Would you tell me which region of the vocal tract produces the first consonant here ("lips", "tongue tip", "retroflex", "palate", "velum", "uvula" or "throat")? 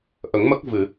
throat